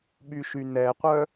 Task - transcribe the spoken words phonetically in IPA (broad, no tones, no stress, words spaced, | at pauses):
ɓyʃynɛqʷœ